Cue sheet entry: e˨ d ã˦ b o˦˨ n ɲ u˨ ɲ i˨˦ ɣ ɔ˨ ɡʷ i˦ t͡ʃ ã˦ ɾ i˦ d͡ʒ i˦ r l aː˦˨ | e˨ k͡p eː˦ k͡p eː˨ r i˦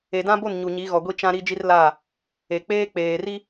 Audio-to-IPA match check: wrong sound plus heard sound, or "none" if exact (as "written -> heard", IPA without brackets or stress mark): none